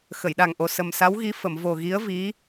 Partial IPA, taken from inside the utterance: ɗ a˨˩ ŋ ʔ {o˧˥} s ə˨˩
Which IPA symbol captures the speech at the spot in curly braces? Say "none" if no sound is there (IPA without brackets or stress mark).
o˨˩